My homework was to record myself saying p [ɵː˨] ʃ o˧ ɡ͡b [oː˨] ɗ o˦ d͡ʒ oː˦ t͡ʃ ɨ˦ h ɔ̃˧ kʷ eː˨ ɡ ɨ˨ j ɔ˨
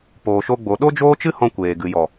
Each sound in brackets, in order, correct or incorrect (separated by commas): incorrect, incorrect